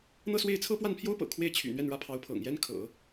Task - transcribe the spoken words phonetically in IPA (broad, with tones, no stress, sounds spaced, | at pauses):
n̪ ɤ˥˧ s w e˥˩ ɪ̯ t͡sʰ ɤ˥ p w a˥˩ n pʰ j o˥ ʊ̯ p ɤ̰˨˩ kʰ w e˥ ɪ̯ t͡ɕʰ y̰˨˩ n̪ ɥ ɛ˥˩ n ɻ ä˥ pʰ ɑ˧˥ ʊ̯ pʰ ɤ̰˨˩ ŋ j ɛ˥ n kʰ ɤ̰˨˩˦